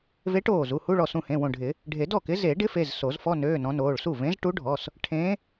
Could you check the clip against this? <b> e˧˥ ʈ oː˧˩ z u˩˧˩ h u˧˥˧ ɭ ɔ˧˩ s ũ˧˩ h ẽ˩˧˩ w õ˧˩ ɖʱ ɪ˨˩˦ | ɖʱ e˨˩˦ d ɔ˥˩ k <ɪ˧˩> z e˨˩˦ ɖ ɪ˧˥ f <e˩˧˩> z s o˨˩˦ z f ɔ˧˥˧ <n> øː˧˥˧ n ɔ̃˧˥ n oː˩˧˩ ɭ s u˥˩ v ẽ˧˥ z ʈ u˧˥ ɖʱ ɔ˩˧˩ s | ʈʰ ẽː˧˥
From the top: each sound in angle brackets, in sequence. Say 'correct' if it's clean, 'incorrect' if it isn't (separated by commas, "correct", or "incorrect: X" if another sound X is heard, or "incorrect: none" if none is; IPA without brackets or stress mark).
incorrect: v, incorrect: ɪ˧˥, correct, correct